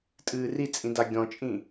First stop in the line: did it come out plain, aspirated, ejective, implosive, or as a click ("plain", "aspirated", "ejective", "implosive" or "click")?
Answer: ejective